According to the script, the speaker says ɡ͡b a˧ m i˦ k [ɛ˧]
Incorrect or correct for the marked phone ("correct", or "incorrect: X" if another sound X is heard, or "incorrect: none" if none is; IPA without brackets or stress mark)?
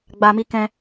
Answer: incorrect: ɛ̃˧